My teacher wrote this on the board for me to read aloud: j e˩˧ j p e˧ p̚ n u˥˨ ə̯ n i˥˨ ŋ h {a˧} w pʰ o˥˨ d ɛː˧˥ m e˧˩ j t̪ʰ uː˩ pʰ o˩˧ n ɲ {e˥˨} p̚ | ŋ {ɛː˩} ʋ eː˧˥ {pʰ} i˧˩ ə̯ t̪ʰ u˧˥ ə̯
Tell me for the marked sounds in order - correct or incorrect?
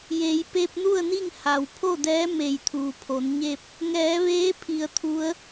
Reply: incorrect, correct, incorrect, correct

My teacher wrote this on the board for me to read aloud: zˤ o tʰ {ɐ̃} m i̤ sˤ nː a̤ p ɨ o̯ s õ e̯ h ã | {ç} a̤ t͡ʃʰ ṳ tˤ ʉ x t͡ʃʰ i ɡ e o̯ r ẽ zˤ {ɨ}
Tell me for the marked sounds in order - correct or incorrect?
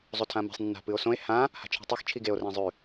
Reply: incorrect, incorrect, incorrect

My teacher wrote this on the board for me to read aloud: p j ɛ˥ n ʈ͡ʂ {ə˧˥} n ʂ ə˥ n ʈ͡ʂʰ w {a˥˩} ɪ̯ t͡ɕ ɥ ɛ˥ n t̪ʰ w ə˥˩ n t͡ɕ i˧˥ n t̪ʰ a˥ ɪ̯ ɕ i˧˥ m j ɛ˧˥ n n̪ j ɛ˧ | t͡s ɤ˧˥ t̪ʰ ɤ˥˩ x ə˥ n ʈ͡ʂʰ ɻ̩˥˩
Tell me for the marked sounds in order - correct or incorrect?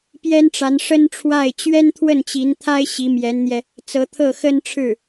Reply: incorrect, correct

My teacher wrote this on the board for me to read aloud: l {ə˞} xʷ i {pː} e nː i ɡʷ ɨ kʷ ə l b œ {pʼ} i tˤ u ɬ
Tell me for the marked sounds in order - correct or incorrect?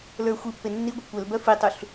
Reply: correct, correct, incorrect

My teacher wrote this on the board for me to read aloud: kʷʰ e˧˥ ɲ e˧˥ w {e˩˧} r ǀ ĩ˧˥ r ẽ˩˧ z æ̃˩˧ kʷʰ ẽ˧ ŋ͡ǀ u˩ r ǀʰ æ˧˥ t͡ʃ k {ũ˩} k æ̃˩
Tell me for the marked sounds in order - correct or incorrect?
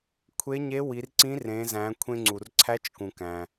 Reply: incorrect, correct

